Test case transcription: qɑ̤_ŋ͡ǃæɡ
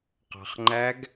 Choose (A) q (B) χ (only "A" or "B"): B